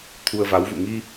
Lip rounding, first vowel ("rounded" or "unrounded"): rounded